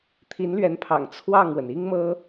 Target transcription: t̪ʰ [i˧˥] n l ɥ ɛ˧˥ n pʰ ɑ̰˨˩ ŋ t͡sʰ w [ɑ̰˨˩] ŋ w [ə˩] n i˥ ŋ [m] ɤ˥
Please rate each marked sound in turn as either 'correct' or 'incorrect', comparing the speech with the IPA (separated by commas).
correct, incorrect, correct, correct